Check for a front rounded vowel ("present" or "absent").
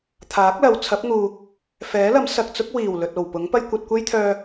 present